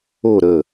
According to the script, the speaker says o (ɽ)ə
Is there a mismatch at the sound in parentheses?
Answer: yes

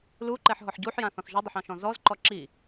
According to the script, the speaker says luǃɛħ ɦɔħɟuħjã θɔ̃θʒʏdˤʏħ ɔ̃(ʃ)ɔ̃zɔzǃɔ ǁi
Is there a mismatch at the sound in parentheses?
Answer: no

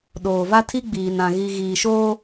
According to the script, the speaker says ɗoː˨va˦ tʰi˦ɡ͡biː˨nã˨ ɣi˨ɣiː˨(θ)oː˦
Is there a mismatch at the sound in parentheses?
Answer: yes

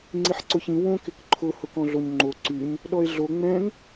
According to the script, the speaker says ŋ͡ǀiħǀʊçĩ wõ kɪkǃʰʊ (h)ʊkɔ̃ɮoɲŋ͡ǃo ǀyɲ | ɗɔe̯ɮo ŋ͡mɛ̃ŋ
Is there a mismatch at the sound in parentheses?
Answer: no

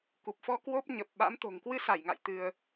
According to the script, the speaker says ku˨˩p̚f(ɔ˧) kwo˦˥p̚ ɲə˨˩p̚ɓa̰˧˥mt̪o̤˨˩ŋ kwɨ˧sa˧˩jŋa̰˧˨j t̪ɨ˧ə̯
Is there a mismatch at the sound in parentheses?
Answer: no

